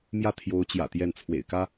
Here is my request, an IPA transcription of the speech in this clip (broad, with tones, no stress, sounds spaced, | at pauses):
m j ä˥˩ t̪ʰ j o˧˥ ʊ̯ t͡ɕ j ä̰˨˩ t̪ j ɛ˥˩ n t͡sʰ w ḛ˨˩ ɪ̯ k ä˥